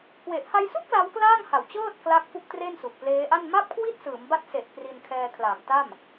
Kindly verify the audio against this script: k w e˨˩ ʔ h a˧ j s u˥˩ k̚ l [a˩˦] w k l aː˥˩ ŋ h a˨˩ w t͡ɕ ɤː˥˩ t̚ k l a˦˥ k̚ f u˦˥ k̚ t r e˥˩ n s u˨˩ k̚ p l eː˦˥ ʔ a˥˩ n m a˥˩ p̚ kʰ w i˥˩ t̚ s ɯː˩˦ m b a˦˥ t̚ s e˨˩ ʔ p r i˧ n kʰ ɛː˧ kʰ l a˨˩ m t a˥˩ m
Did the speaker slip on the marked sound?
yes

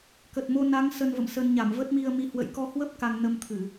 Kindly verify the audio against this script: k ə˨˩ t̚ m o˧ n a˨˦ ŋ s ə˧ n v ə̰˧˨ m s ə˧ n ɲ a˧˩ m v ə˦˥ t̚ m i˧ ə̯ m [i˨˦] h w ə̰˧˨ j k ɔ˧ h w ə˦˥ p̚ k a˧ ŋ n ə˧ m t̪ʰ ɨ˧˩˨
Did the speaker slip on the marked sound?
no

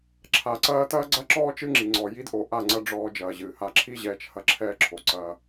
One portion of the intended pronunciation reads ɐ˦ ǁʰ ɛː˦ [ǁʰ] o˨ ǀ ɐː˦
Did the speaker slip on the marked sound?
no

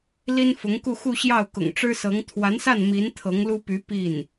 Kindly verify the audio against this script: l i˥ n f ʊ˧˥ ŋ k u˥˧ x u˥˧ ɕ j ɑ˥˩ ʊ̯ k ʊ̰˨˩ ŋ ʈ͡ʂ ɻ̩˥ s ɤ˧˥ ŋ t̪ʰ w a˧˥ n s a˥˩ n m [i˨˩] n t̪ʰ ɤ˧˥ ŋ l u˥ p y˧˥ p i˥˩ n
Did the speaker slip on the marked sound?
yes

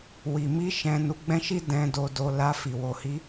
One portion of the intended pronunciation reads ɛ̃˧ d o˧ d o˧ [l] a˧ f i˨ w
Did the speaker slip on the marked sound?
no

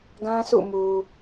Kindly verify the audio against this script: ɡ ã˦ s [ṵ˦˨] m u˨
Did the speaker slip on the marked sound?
no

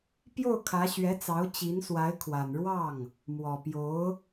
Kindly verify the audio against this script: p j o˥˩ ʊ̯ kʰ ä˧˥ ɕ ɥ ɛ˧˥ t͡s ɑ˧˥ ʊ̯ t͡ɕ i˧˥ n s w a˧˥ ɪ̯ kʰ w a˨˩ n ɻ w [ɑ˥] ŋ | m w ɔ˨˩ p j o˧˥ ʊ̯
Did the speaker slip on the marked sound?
yes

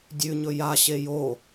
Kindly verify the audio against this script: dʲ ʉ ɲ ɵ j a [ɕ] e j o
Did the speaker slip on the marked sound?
no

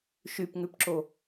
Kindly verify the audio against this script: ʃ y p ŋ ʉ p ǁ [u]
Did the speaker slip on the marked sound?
yes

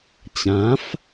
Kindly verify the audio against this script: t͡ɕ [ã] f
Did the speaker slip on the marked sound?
no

